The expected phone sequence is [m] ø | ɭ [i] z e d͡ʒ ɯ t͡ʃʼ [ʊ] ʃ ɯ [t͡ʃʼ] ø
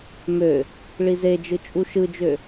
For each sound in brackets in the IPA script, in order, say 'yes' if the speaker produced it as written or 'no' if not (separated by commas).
yes, yes, no, no